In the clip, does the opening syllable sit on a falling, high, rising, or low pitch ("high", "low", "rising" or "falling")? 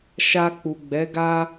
low